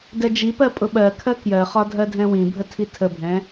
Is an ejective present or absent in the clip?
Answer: present